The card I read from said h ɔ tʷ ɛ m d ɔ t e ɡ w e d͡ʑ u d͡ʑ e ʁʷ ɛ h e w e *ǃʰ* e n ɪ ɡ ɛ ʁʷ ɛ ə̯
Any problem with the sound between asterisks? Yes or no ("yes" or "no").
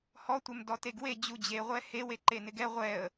yes